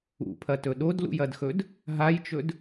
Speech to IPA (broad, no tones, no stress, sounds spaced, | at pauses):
ṵ pʰ ɐ t ɵ ɗ o d l ṵ j ɐ d x ɵ d | ɦ a j t͡ʃ ɵ d